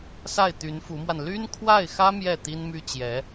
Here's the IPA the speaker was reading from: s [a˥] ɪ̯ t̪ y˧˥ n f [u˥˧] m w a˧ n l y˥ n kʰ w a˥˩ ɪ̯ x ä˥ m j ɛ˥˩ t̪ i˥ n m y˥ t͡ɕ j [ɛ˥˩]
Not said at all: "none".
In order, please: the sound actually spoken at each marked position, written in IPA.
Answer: a˥˩, u˧˥, ɛ˧˥

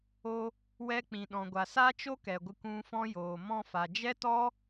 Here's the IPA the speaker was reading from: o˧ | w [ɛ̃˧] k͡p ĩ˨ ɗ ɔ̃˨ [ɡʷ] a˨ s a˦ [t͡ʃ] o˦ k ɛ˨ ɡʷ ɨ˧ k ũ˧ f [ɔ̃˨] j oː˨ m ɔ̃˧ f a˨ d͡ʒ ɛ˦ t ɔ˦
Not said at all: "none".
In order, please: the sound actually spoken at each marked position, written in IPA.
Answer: ɛ˧, ɡʷ, t͡ʃ, ɔ̃˦

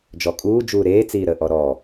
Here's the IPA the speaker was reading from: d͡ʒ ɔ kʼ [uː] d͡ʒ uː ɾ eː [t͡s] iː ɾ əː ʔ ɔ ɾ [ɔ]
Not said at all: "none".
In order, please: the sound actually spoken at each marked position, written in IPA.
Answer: uː, t͡s, ɔ

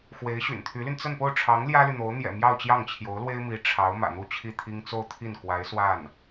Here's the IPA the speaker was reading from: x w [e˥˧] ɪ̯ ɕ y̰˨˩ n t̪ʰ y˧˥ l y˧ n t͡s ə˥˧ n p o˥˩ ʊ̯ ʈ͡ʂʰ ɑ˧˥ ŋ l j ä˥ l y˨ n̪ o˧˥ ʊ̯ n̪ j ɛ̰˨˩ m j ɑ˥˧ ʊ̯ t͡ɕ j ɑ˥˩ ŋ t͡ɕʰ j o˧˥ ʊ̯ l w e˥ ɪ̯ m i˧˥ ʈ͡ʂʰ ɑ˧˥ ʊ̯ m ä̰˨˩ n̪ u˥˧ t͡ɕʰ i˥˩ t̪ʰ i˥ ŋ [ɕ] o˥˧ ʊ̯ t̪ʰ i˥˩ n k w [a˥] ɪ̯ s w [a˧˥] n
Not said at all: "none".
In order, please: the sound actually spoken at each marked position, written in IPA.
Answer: e˧˥, t͡s, a˧˥, a˥˩

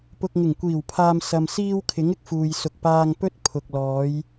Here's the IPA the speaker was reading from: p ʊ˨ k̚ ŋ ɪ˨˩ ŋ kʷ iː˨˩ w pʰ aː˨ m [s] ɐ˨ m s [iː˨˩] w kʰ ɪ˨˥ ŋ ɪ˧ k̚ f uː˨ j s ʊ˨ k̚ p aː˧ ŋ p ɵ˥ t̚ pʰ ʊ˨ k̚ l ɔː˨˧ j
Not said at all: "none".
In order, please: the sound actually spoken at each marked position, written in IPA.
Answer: s, iː˧

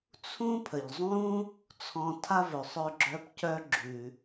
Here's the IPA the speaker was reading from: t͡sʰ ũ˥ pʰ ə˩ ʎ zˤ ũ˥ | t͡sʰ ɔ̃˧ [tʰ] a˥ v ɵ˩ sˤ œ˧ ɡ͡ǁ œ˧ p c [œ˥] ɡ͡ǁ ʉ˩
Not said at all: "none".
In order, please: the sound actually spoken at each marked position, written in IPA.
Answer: tʰ, œ˧

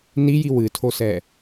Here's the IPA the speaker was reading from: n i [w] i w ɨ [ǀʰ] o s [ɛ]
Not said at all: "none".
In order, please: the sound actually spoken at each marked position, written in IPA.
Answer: j, tʰ, ɛ

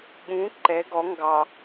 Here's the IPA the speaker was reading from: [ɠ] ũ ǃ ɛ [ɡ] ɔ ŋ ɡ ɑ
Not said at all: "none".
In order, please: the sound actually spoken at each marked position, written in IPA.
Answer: ɠ, ɡ

